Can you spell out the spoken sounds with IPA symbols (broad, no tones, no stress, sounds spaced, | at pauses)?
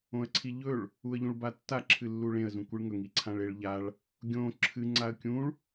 õ ə̯ ǀʰ i ʎ ɵ ɭ | u ə̯ ʎ ũ ɭ b a tː a ǁʰ ɨ lː u ɭ ẽ ə̯ z ũ kʷ ɨ ɭ ŋ ɵ ŋ i ǀʰ ã ɭ e ɭ ʎ a ɭ | ɡʲ õ ǁʰ ɨ ŋ͡ǀ a ə̯ kʲ ũ ɭ